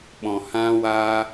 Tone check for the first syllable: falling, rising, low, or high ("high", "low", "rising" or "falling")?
low